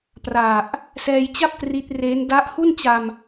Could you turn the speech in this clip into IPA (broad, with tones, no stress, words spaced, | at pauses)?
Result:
pra˨˩ʔ | sɛː˧jt͡ɕa˥˩p̚ tri˦˥t̚reː˦˥n da˦˥ʔhu˥˩nt͡ɕa˧m